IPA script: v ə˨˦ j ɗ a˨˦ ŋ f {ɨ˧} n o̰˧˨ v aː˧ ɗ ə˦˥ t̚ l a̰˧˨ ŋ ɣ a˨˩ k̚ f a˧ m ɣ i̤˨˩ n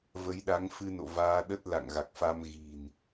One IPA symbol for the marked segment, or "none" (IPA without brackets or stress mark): ɨ˧